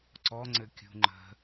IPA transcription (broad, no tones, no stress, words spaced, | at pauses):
ǀɔ ŋ͡ǀɘkʲṳŋ͡ǃə̤